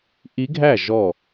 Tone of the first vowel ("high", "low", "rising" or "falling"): rising